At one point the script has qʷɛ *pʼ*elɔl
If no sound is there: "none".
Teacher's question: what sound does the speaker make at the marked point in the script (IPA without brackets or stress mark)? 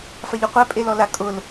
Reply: pʼ